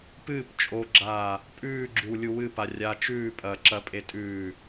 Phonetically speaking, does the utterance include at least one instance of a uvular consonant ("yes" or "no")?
no